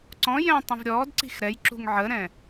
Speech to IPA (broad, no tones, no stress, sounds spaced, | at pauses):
ǀ ɔ̃ j ɛ̃ tˤ ə̃ v ɾʲ ɔː d ǀ i̤ x ɾ ɛ j ǁ ṳ ŋ ʕ ə ɾ ɛ̃